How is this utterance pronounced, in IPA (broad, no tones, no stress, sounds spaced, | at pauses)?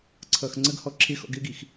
ǀʰ ʌː x ŋ͡ǀ ə ɡ h ɔ ǁʰ ɪː x ɔ̰ ɡ ɪː ɡ i x